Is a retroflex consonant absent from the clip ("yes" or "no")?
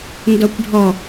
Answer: no